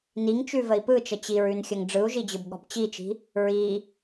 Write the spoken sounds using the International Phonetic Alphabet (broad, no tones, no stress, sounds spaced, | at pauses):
n i ŋ t͡ʃ ʉ v ə i̯ p ɯ t͡ʃ ə t͡ɕ i ɹ ʉ n xʲ ə ŋ ɖ͡ʐ ɯ u̯ ʒ i d͡ʑ ɯ b ɠ ɔ̤ b t͡ɕ i t͡ʃ i̤ | ɹ i